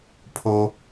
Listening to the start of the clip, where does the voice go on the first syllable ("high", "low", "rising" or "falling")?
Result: high